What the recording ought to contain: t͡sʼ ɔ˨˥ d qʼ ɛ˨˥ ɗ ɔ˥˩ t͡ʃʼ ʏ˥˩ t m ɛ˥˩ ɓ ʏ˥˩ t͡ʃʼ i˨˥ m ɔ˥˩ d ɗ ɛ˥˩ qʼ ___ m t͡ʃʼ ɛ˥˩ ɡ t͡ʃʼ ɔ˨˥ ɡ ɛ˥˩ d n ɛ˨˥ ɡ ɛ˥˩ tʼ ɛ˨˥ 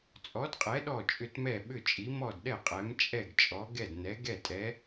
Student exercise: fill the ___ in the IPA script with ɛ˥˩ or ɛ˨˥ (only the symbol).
ɛ˨˥